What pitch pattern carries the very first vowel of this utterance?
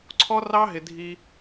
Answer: high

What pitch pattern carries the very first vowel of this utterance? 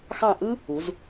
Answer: falling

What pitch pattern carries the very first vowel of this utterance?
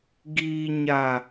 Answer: low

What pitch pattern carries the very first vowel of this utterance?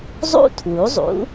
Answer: high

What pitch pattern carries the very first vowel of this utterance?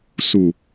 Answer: low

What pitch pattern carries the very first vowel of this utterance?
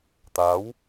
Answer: rising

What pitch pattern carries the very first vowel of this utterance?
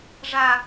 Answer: high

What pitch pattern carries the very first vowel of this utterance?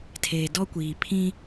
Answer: low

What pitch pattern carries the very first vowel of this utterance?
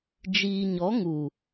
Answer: low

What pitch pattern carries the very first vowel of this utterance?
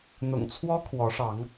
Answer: low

